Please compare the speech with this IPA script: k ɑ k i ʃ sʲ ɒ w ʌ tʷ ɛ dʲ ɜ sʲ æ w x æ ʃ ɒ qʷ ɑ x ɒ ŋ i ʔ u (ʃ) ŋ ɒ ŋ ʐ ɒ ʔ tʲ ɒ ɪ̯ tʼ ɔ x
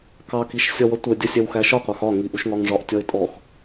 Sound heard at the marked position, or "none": ʃ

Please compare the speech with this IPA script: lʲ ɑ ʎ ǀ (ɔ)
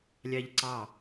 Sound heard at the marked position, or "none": ɑ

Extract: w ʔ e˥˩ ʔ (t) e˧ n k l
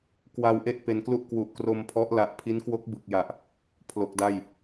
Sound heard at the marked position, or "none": p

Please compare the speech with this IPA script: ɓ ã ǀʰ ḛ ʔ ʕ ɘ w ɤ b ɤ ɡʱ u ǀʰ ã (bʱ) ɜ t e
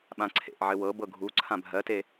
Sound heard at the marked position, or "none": bʱ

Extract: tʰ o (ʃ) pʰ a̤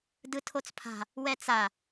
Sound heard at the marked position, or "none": t͡s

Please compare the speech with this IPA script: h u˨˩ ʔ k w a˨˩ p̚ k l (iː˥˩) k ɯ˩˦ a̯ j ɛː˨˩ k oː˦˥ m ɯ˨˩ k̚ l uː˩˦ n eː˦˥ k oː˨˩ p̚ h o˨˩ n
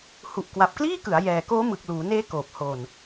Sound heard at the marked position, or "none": iː˥˩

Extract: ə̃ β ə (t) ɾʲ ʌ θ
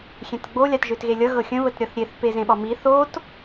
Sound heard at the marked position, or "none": t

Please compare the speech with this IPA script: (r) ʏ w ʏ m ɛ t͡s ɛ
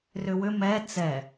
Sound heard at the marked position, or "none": r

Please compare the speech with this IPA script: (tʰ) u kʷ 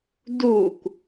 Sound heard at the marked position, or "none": d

